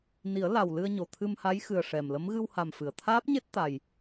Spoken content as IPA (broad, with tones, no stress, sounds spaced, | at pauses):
n i˨˩˦ ə̯ l a˨˩ w l ɨ˧ ə̯ ɲ o˨˩ t̪ʰ ɨ˧ m h a˧˥ j x ɨ˨˩ ə̯ ʂ ɛ˨˩ m l ə˧˥ m ɣ ɨ˧ w h a˨˩ m f ɨ˨˩˨ ə̯ t̪ʰ aː˦˥ p̚ ɲ e˦˥ t̚ t̪ a˨˩ j